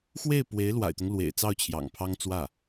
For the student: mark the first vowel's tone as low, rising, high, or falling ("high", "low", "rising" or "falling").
falling